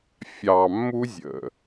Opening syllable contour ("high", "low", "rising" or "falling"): low